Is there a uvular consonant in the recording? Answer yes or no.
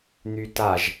no